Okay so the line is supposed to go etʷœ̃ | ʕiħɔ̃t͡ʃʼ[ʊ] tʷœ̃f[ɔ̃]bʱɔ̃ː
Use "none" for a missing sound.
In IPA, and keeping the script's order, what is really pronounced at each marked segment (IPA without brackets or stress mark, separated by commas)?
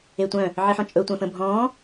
ɵ, ə̃